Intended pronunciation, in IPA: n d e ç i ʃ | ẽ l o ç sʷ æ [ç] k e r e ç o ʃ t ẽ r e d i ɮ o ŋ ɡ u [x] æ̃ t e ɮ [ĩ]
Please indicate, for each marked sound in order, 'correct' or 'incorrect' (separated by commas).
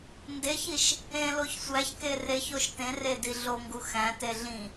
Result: correct, correct, correct